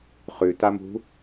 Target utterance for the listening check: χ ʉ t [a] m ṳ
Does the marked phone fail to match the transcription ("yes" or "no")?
no